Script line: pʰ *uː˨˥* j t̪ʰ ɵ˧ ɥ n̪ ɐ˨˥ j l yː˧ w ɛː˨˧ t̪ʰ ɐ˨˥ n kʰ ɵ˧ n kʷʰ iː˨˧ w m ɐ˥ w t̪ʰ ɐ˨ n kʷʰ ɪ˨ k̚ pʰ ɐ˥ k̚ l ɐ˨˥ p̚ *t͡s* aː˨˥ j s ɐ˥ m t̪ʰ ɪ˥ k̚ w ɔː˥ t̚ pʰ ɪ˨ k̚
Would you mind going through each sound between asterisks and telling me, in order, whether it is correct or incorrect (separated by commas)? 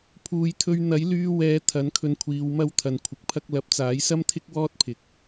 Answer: incorrect, correct